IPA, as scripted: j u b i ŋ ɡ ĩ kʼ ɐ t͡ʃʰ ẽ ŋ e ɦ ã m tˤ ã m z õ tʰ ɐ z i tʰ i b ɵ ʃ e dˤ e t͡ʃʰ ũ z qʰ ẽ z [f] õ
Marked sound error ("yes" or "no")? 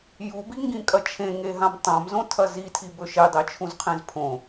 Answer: yes